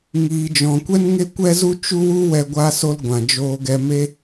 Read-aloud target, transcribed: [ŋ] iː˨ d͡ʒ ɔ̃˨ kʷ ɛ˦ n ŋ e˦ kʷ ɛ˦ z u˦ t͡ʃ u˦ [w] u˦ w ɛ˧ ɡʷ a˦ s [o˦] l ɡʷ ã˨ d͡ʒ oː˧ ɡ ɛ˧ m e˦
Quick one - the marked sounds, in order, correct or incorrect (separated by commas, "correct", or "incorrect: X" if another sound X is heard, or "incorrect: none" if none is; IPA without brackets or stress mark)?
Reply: correct, correct, correct